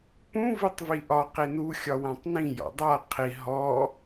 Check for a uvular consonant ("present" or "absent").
present